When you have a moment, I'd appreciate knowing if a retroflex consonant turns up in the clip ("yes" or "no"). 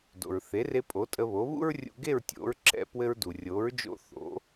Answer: no